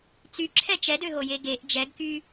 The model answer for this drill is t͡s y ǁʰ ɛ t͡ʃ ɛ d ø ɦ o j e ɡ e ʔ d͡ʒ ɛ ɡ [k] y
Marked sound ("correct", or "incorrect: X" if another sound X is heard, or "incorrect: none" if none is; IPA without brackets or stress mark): correct